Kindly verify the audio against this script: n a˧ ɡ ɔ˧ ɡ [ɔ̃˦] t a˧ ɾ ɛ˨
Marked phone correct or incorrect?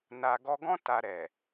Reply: correct